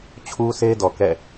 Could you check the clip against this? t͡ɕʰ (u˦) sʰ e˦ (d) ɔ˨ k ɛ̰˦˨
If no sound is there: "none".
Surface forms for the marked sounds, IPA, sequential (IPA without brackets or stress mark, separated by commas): u˦, d